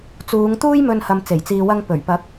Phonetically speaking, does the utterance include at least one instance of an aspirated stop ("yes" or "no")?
no